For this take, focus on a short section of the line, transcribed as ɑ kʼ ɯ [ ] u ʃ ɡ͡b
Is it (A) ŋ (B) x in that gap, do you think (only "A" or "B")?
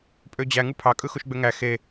B